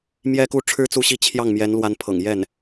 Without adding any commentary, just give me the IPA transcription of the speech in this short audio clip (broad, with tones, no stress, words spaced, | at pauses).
mjɛ˥ku˥ ʈ͡ʂʰɻ̩˥t͡su˥˧ɕi˥˧ t͡ɕʰjɑ˥˩ŋmjɛ˧˥n lwa˧˥npʰɤ̰˨˩ŋjɛ˥˩n